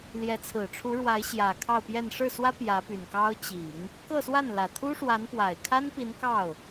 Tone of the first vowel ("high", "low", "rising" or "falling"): rising